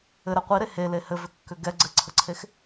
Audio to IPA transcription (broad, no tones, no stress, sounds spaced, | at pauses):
ɘ ɾ ɛ qʷ i ɾ e h e l e h ɘ v ʏ kː ʏ ɡ ɛ ɡ͡ǀ ɘ ǀʰ ə ǀʰ e x